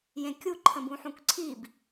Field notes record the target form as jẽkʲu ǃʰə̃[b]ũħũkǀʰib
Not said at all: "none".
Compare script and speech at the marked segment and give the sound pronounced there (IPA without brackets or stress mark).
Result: b